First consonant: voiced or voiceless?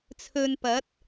voiceless